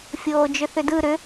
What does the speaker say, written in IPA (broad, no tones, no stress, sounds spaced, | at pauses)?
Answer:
fʲ oː d͡ʒ ʏ θ ʏ d ɯ ɾ ʏ